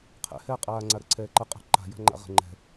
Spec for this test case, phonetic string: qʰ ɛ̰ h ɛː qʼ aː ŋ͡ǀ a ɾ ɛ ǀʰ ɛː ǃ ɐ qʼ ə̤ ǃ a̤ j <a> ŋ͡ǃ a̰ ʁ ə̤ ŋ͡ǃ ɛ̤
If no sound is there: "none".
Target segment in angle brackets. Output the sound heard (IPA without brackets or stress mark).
a̤